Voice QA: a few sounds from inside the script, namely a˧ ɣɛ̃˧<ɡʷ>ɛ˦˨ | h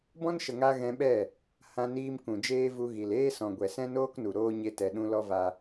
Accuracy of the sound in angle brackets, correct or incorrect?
incorrect: ɓ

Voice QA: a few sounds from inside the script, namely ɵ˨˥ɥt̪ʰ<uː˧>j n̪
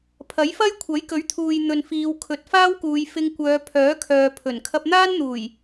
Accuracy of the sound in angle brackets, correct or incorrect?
incorrect: uː˨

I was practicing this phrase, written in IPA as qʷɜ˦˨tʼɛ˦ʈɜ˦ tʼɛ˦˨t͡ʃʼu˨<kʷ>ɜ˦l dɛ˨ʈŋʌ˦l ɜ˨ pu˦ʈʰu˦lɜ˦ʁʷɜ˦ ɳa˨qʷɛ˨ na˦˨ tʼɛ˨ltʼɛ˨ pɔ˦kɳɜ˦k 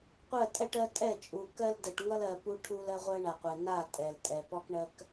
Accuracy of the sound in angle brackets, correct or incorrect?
incorrect: k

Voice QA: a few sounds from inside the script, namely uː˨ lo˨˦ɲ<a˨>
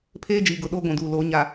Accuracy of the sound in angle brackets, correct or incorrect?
correct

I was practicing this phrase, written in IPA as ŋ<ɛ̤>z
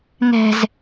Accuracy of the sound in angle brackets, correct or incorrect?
correct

